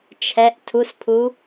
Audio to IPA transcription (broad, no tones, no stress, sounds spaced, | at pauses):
t͡ʃʰ ɛ ʔ tʰ u s pʰ u